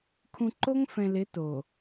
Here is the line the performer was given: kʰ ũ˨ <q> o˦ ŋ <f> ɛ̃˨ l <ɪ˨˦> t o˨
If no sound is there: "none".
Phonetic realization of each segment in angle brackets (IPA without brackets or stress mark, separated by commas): ǃ, f, ɪ˨˦